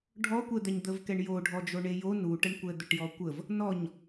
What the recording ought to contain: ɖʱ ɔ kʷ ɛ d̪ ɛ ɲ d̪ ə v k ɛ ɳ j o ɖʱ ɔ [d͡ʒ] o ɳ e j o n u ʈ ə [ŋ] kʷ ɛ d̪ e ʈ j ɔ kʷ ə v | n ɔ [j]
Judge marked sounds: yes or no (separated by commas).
yes, no, no